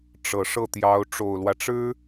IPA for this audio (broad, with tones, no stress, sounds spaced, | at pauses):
ʈ͡ʂ ɤ˨˩ ʂ ɤ˥˩ t̪ j ɑ˧˥ ʊ̯ ʈ͡ʂ o˨˩ ʊ̯ l w ä˦ ʈ͡ʂ ɻ̩˥